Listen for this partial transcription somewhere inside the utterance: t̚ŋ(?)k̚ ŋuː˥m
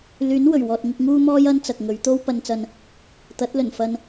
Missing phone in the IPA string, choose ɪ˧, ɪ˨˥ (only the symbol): ɪ˧